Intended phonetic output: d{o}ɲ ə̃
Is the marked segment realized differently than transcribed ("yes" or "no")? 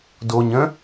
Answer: no